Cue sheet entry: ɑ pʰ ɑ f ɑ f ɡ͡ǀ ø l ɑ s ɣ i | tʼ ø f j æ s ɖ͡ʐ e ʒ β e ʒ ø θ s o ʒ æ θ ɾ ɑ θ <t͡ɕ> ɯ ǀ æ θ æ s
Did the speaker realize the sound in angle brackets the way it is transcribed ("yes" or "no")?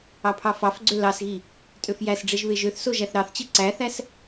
yes